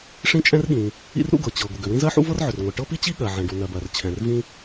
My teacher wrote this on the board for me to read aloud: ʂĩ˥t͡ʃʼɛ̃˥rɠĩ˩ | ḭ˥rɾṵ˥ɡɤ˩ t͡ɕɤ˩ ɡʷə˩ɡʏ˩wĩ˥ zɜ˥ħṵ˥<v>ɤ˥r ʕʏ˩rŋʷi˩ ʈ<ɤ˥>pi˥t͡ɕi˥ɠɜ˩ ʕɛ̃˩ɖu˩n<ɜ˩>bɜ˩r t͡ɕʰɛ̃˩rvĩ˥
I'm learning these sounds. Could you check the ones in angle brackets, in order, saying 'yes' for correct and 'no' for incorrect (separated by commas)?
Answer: yes, yes, yes